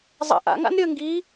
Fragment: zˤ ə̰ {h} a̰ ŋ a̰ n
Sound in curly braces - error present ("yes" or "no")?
yes